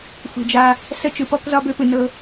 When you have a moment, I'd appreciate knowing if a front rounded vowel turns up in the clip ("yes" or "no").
yes